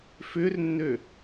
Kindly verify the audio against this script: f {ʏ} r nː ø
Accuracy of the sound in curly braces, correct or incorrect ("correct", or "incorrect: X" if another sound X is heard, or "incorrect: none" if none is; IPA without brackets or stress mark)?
correct